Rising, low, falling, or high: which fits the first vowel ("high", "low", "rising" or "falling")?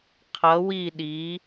rising